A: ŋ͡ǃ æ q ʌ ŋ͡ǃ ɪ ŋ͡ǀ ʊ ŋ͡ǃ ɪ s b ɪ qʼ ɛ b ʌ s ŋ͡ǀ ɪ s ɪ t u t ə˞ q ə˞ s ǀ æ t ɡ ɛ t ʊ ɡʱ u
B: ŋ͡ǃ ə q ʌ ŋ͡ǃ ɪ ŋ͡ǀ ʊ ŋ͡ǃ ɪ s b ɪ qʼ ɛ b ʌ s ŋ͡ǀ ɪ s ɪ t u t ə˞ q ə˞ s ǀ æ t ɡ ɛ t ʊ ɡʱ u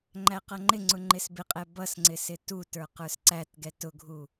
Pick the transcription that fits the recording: A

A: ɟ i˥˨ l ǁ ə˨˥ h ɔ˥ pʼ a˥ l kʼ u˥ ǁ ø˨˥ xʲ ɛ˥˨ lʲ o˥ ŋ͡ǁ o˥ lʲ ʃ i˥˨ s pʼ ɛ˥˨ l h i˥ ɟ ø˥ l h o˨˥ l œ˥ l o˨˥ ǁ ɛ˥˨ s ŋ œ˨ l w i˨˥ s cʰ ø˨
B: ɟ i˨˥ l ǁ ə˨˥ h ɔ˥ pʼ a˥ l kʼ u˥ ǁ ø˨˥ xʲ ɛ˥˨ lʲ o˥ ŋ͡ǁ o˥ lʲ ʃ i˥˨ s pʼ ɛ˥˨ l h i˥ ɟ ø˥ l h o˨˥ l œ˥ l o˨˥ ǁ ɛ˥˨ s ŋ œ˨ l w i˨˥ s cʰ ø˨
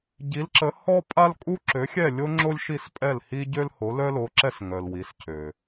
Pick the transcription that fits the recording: B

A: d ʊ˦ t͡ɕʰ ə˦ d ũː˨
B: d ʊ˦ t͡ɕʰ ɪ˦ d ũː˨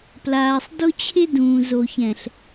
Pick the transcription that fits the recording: B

